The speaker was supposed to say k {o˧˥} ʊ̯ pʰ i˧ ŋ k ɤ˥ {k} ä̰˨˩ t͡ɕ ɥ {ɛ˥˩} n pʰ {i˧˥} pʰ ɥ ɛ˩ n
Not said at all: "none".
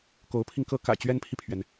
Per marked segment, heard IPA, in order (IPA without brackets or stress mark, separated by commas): o˧˥, k, ɛ˥, i˨